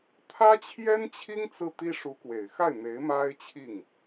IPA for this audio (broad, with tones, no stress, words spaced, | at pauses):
t̪ʰä˥t͡ɕʰjɛ˥nt͡ɕʰi˥ŋ t͡sɹ̩˥˩t̪i˥ ʂu˧˥kwe˨˩ɪ̯xa˥˩ɪ̯n̪e˧˥ɪ̯ ma˥ɪ̯t͡ɕʰi˥˩ŋ